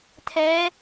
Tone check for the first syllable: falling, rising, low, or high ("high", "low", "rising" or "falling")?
rising